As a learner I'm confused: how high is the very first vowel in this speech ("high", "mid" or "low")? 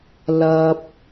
low